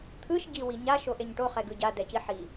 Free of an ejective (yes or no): yes